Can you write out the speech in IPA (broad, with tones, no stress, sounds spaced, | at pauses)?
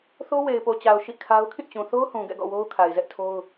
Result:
θ o˦ w e˨ ɪ̯ p o˨ t͡ɕ a˨ ʊ̯ ʃ ḭ˦˨ kʰ a˦ ʊ̯ kʰ ĩ˦˨ t͡ɕ ũ˨ θ o˦ ʊ̯ h ũ˨ ɡ ɛ̰˦˨ ɡ ɔ̰˦˨ w o˦ ʊ̯ kʰ a˨ ɪ̯ z ɛ˦ ʔ tʰ o˦ ʊ̯